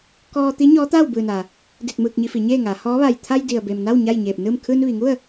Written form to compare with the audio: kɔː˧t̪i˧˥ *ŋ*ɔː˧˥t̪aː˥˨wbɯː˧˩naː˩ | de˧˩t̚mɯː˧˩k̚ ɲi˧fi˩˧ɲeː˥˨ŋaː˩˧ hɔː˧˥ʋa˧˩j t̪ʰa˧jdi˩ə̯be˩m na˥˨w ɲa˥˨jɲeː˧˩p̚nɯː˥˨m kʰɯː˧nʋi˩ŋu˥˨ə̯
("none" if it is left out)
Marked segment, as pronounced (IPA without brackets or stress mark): ɲ